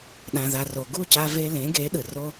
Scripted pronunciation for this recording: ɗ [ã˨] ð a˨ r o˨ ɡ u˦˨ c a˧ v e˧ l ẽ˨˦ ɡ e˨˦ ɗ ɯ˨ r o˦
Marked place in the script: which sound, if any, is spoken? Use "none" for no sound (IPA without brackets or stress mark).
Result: ã˨